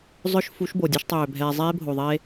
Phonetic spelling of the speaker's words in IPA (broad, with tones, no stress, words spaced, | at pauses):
zˤœ˦ʃfu˨˦ʃ bo˨dʲɛ˦ʃtˤøː˨ bʱɛː˨ zˤeː˦bʱo˨ðˤe˦